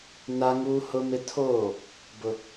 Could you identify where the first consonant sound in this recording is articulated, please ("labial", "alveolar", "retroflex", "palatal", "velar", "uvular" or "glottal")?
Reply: alveolar